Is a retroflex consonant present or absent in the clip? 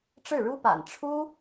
present